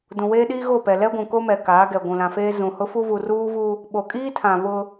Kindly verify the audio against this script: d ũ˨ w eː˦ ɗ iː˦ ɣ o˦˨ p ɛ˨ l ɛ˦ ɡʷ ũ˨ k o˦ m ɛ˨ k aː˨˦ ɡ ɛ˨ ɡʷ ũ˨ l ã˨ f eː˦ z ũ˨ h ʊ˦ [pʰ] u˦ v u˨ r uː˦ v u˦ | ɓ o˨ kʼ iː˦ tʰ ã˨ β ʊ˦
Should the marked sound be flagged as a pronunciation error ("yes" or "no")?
yes